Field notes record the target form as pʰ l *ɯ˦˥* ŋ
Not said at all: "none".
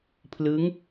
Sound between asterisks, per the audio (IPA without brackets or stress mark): ɯ˦˥